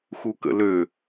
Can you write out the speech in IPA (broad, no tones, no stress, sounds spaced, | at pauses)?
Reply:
x u k ə̰ l ø